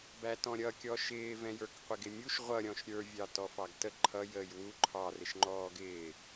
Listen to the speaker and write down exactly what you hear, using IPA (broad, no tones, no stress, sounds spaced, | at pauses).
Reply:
b æ t ɔ̃ ɾʲ ʌ kʲ ɔ ʃ ɪː v ɛ̃ j ə˞ k qʷ ɪ ɡ ɪ mʲ u ʃ ʁʷ ʌ ɾʲ ɔ̃ ʃ ɾʲ ə˞ vʲ ɑ t ɔ f ɑ ɡ t ə ǃʰ ʌ j əː j w u ǃʰ ɑ r ɪ ʃ ŋ͡ǃ ɔː ɡ ɪː